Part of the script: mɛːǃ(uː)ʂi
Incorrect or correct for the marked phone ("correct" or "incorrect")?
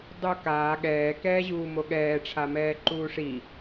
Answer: correct